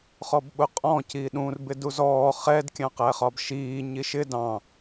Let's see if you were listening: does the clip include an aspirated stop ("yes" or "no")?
no